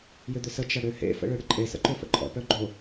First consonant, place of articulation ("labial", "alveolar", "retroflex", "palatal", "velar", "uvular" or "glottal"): palatal